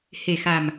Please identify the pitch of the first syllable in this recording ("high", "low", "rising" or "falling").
low